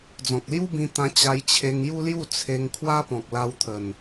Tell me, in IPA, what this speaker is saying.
d͡zɔ̃˨k̚lju˦bĩ˧ t̪ã˧ t͡ɕa˧jt͡ɕʰe˧ŋju˦lju˥˧ t͡sʰe˧ŋ kʰwa˦pɔ̃˨k̚la˧wt̪ʰə˨˩n

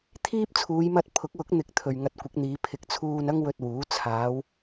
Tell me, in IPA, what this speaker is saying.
t̪ʰiː˥p̚t͡sʰuː˨˧jmɐ˧t̚ pʰʊ˨˥k̚wʊ˨˥k̚n̪ɪ˨˥k̚ t̪ʰɵ˨ɥŋɐ˧t̚kʷɪ˨˥k̚n̪iː˨˧ pʰɪ˨k̚t͡sʰuː˧n ɐ˥ŋwɵ˧t̚wuː˨˥ t͡sʰaː˨˧w

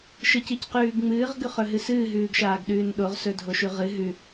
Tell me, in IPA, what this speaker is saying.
ʃɨc icqʉːɡŋ͡mɨːʁ ɡʉχɵɦɨsɨː ɦʉːɡʃaːɡɗʉːnɗoʁ sɵdʱoʃʉʁɨ ɦʉ

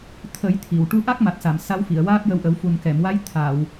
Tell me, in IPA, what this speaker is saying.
t̪ʰə˨˩˦j t̪ʰi˨˩˨w ʈu˧ʔa˦˥k̚ma˨˩t̚sa˨˩˨m sa˧˥wfi˨˩˨ə̯waː˦˥p̚jə˧w ʔə˨˩˦wfu˨˩nkɛ˨˩˨mwa˧˥j t̪ʰa˨˩˨w

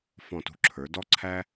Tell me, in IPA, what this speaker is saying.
fɔ̃˧˩tṳ˧ǁʰə˞˩˧ dɔ˥˧ǀʰæ˥

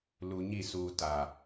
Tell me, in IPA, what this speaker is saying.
lu˨ɲi˦˨suː˨ ta˨

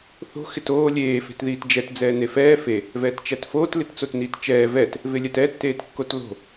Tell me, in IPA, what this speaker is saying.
θo̤ xɪtoː lʲeː fe̤tðiːtd͡ʒɛt d͡zɛːnefɛː fe | vɛːtt͡ʃætfoːt lɪtt͡sotniːtt͡ʃɛː vɛt | vɪlʲɛtɛ tːeːtkːotlo̤

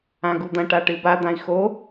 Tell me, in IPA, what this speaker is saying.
ãɡud̪ɐ̃ ʈaʈɨba d̪ãi̯xo

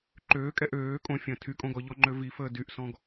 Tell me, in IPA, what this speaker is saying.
ǃøːkʼɛ ʔøː kʼõfʲə̃ː tʰykʼõ ɡɔʎɔŋ͡ǃø vifəː dyʔsɔ̃ɡ

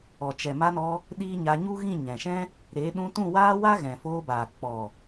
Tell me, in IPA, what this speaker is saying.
ɔ˨t͡ʃɛ˨ma˧nɔ˧ | ɗiː˦ɲa˧ ɲu˦ɣĩ˦˨ ɲɛ̃˨ʃɛ̃˦ | ɾeː˨˦ ɗũ˧tũ˦˨waː˦wa˦ ɣɛ̃˨foː˧baː˨ k͡pɔ˨

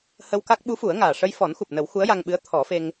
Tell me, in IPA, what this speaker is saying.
hə˧wka˦˥k̚ ɓu˧˥fu˨˩˦ə̯ŋaː˨˩ ʂə˧jfɔ˨˩˦nxu˨˩p̚nə˨˩˦w xu˧˥ə̯ja˧ŋɓɨ˧˥ə̯ t̪ʰɔ˨˩˦fe˧ŋ

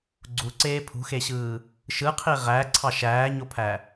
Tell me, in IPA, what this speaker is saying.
ɡ͡ǀuǀeː pʰṳxeɕɯː | ʃɯqʰi ʁæǀʰɑ ʃæːɲopʰæ

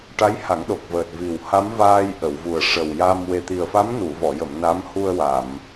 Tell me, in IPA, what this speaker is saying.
ʈa˧˥j ha˨˩˦ŋɗo˨˩k̚vəː˨˩t̚ vi˨˩wha˧˥m vaː˧jʔə˨˩˨wvu˨˩ə̯ ʂə˨˩wja˧m we˨˩t̪i˨˩ə̯fa˧˥m nu˨˩˨vɔ˨˩˨jə˨˩˨m na˧˥mhu˧ə̯wa˨˩˨m

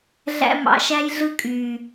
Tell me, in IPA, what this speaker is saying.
ɮæ̰˦mɑ̰˧ʃæ˦j ɮɯ˦kʼyː˨

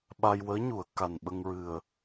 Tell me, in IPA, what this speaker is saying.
ɓa˧j wəː˧˥ɲu˨˩˨ə̯ ka˨˩n ɓə˧ŋɹɨ˨˩ə̯

